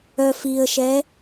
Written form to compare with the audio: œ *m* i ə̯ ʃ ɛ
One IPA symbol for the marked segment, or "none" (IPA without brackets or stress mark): f